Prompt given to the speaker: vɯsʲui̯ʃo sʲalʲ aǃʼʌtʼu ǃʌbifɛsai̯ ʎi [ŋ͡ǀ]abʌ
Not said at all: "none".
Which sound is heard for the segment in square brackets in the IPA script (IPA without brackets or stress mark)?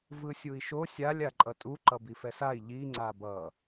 ŋ͡ǀ